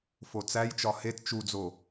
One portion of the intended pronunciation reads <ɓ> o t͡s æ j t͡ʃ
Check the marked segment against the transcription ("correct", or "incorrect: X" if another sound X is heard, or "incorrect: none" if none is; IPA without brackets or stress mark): incorrect: f